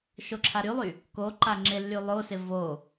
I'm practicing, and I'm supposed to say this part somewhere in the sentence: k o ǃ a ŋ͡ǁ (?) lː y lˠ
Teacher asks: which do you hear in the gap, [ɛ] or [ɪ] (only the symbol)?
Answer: ɪ